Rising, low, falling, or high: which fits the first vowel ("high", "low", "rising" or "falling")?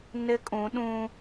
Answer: high